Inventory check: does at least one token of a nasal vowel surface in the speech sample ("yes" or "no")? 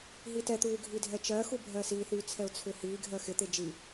no